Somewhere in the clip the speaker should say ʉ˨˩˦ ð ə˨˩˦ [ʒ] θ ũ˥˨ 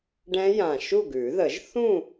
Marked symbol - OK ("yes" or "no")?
yes